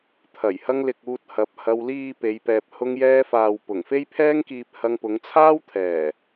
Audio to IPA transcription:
t̪ʰ ɐ˨˩ j h ɐ˧ ŋ l ɪ˨ k̚ uː˧ t̚ h ɐ˨˥ p̚ h ɐ˧ w l iː˨ p e˨˧ j p ɛː˨ p̚ h ʊ˧ ŋ j ɛː˧ f aː˨ w p ʊ˨˩ ŋ f e˥ j pʰ ɛː˥ ŋ k iː˧ p̚ h ɐ˧ ŋ p ʊ˨˧ ŋ t͡sʰ aː˥ w t̪ʰ ɛː˨˩

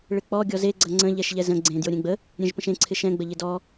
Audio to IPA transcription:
ɭ ɪ k͡p ɔ ɡʲ ɔ z e ɡ͡ǀ ɐ ŋ͡ǀ ə̃ ʎ ɛ ʃ ʎ ɛ z ə̃ ɡ͡ǀ ẽ d j o ɾʲ ẽ ɡ͡b ə | ɾʲ ẽ ʒ p ə̃ ʃ ẽ ǀʰ ɪ ʃ ɛ̃ ɡ͡b ə ʎ ɪ d ɔ

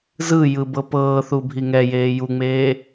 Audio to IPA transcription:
z ɯ j ɯ b ɤ p ɤː θ u bʱ i ŋ ɛ j eː j u ŋ͡m eː

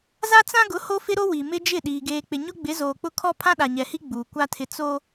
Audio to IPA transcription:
z a˦ t͡s ã˦ ɡ ʊ˨˦ h o˦ f ɪ˦ ɾ o˦ w i˨ m ɪ˦ d͡ʒ ɪ˦˨ ɗ iː˨ ɡ eː˨ k͡p ɪ˨ ɲ ʊ˦ ɡ͡b ɪ˨˦ z oː˨ k͡p ʊ˦ kʰ ɔ˦ pʰ ã˦ ɗ a˨ ɲ ɛ˨ h i˦ ɡ͡b uː˨ kʷ a˦ tʰ ɪ˦ t͡s o˦

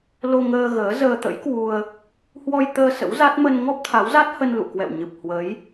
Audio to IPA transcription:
l o˧ ŋ əː˧ ɣ əː˨˦ z əː˧ t̪ ə̰˧˥ j k w u˧ ə̯ | h w ɔ˧ j t̪ əː˧ s ə̰˧˥ w z a˦˥ t̚ m ə˧ n ŋ ɔ˦˥ p̚ t̪ʰ a˨˦ w z a˦˥ t̚ h ə˧ n l ṵ˧˨ k w ɛ̰˧˨ w ɲ ɨ˨˩ p̚ h w ə˨˦ j

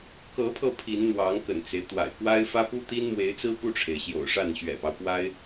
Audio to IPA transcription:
k ɤ˧˥ pʰ ɤ˧ pʰ i˧˥ n n̪ w ɑ˧˥ ŋ k ə̰˨˩ n t͡s e˦ ɪ̯ t̪ w a̰˨˩ ɪ̯ k w a˥ ɪ̯ f ä˥ p u˥ t̪ i˥ n m w e˧˥ ɪ̯ t͡s ɹ̩˥ p u˥˩ ʈ͡ʂʰ e˩ ɪ̯ ɕ j o̰˨˩ ʊ̯ ʂ a˥˩ n ɕ ɥ ɛ̰˨˩ p ɑ˦ ʊ̯ p w a˥ ɪ̯

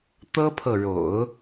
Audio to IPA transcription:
t̪ ɤ˥ pʰ ɤ˨ ɻ o̰˨˩˦ ʊ̯

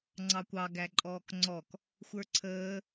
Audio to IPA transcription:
ŋ͡ǀ ɑ kʷ ɑ ɡ æ ǃʼ ɔː k ŋ͡ǀ ɔ k | xʷ ə˞ ǀʰ əː

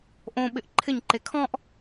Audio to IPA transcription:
ʔ õ ɓ ɪ ʔ ǃʰ ɪ ɲ ǃ e kʰ ɔ̃ ʔ

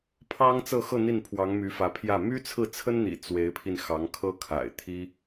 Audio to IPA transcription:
pʰ ɑ˥ ŋ t͡s ɤ˥˧ x ɤ˥˧ n̪ i˥˩ n pʰ w ɑ˧˥ ŋ m y˧˥ f ä˧˥ pʰ j ä˥˩ m y˥ t͡sʰ ɹ̩˥˩ t͡sʰ ə˥ n n̪ ḭ˨˩ t͡s w e˧˥ ɪ̯ pʰ i˧ n x ɑ˧˥ ŋ kʰ ɤ˥ kʰ a̰˨˩ ɪ̯ t̪ʰ i˥

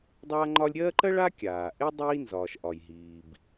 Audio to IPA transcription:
dˤ aː˦ ŋ͡ǃ ɒ˦ lʲ ɾʲ ɜː˥ ǃ ɜ˥ ɭ a˥ kʲ aː˩ ʔ e˥ dˤ iː˦ n z ɒː˩ ʃ ʔ ɒ˩ j ɦ iː˩ b

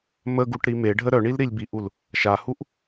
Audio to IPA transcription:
m ə ɡ u ʈ ɾ i m e ɖʱ ə ɾ œ ɳ i l ɾ i lʲ b i ʔ u l | ʃ a h u ʔ

